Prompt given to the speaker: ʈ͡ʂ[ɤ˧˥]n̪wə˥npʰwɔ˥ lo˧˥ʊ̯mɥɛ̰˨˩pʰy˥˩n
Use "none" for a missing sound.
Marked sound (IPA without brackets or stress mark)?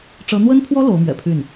ɤ˧˥